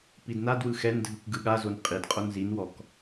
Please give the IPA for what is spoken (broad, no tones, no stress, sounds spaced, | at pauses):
p i d n a d w ɯ x ɛ n dʱ ɯ k ɡ ɯ ɠ a z o n qʼ i d qʼ o n z i n w ɔ k